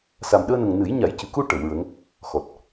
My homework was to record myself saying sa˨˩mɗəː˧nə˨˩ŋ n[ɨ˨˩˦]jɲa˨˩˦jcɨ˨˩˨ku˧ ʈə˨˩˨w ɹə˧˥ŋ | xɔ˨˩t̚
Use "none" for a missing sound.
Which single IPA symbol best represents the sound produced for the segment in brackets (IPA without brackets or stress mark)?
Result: ɨ˨˩˦